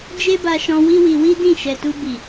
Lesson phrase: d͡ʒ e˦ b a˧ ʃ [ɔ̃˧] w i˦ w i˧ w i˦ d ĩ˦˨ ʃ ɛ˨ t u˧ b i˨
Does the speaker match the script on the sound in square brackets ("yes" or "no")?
yes